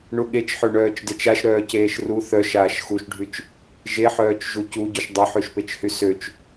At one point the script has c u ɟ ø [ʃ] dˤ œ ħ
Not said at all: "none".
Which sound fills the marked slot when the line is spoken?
ʃ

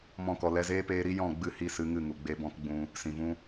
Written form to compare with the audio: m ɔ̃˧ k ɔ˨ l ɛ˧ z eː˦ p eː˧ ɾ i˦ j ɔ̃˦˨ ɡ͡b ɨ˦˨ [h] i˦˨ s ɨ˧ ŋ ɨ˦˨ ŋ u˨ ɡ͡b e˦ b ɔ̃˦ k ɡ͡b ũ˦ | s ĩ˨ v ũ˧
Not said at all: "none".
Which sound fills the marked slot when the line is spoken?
h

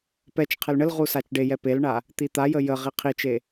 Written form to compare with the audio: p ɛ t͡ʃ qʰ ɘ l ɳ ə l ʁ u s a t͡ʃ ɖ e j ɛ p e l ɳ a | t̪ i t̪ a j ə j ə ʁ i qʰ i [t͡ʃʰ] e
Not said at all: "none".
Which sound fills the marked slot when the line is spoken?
t͡ʃ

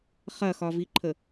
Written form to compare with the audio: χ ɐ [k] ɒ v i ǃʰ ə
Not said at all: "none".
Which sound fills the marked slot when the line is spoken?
x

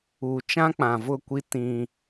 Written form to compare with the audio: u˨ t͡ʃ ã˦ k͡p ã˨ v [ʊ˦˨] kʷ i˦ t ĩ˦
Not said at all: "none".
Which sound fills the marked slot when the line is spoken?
ʊ˦˨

